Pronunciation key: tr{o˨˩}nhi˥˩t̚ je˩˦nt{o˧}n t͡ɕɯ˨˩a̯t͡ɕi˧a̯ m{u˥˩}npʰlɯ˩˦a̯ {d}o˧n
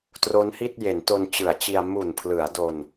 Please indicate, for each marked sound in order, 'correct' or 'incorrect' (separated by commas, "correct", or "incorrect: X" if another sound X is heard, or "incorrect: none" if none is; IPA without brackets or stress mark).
incorrect: o˦˥, correct, incorrect: u˨˩, correct